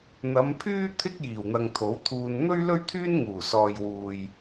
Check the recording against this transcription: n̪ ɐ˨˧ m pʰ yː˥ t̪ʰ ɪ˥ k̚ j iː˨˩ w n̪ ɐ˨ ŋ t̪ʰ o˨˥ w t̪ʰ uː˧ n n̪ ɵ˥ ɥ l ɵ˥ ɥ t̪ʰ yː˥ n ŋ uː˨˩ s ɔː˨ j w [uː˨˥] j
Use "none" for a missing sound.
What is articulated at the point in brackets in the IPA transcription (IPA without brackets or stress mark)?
uː˨